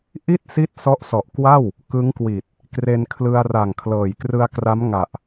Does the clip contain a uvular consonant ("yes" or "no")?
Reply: no